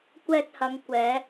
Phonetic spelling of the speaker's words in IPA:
kʷ ɛː˧ t̚ h ɐ˨˧ ŋ kʷ ɛː˨˧

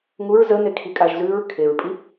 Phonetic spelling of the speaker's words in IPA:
ŋ u ɹ z ə n e kʰ i kʼ a ʒ z ʉ ɹ kʰ e ɹ pʼ i

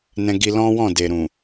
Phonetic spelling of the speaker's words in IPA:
n ɛ̃˧ ɡ i˧ l ɔ̃˦ w ɔ̃˦˨ d e˨ ɾ ũ˨

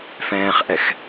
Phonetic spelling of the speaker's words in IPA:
f ɛ̃ː χ ʔ ɛ x

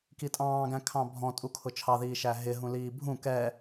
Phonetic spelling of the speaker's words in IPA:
k i tʼ ɑ̃ː ɡ æ̃ kʰ ɑ̃ bʱ ɔ̃ tʼ u kʰ ʊ t͡ʃʰ ɑ ð iː ʃ æ ɦ ɪ ɦ ũ l iː bʱ ũ k ɛ

